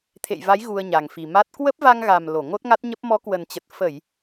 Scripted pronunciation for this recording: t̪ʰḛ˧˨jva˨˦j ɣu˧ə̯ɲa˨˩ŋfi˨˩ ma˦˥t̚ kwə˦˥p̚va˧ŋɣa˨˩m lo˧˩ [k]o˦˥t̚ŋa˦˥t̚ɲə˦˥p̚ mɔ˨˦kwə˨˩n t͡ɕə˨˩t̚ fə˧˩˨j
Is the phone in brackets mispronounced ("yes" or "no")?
yes